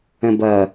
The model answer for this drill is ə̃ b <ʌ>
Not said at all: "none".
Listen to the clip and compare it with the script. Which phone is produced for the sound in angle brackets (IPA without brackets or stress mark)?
ʌ